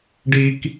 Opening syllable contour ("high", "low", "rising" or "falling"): low